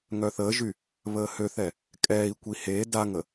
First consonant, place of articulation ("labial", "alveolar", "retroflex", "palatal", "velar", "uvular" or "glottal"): velar